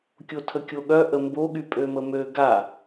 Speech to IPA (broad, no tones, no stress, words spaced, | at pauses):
kʲotʰəkʲoɠœ ʔəmboɠy pʼøməmø ɡa